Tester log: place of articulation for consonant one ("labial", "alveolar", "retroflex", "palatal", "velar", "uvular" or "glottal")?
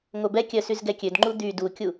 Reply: velar